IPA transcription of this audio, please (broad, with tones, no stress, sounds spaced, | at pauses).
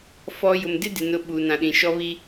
f ɔ˨ j ʊ˨ m d ɪ˦ d ɪ˨ n ʊ˨ ɓ uː˨ n ã˨ ɗ ĩ˨ ʃ ɔ˦ β i˦